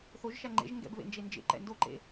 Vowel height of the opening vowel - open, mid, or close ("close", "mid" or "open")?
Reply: mid